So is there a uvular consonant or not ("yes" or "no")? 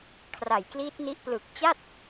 no